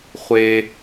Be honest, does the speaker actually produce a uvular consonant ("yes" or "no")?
yes